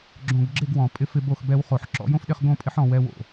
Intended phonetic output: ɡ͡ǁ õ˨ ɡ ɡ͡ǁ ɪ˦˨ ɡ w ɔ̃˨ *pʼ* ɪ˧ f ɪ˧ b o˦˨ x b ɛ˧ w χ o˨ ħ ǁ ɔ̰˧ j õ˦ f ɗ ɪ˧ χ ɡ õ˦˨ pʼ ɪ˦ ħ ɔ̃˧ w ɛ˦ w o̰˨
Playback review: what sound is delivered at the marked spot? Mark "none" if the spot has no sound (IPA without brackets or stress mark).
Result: pʼ